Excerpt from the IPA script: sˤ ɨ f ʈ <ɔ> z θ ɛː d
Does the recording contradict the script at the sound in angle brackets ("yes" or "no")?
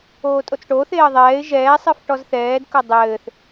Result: no